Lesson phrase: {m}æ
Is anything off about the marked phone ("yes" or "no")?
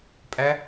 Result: yes